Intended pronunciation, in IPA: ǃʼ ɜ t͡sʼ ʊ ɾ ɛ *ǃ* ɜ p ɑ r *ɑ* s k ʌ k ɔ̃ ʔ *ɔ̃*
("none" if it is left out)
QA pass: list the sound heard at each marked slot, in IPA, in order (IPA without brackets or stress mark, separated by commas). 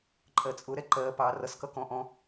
ǃ, ʌ, ɔ̃